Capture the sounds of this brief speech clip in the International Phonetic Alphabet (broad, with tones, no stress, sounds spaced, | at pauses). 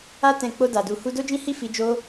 a˦ t ɛ̃˧ k͡p o˧ d a˨ d u˨ h u˧ d o˦ d͡ʒ ĩ˦ h i˦˨ f i˧ d͡ʒ o˦